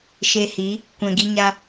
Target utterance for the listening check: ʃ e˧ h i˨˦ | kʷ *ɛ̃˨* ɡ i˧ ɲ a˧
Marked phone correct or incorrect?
correct